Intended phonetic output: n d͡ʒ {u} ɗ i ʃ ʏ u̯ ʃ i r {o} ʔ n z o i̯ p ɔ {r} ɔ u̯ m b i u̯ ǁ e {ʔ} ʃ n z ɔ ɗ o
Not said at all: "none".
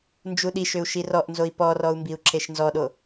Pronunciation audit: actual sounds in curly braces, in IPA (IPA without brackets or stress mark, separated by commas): u, ɔ, r, none